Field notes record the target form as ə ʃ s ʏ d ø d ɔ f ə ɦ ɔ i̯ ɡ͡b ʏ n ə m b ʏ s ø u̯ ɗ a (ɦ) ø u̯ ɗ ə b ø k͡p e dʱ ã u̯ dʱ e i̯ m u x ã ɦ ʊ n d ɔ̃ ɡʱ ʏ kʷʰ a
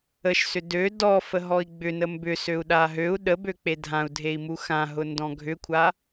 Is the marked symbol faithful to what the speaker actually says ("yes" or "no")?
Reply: yes